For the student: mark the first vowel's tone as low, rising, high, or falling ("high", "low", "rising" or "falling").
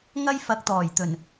high